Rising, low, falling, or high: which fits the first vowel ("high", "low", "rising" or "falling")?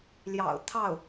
low